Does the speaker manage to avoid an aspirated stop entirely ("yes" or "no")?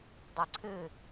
no